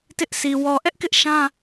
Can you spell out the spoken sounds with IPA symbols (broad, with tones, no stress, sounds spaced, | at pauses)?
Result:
t ɪ˦ ʔ sʰ i˨ w ɔ˨ ʔ ɛ˦ ʔ k ɪ˦ ʔ ʃ ã˦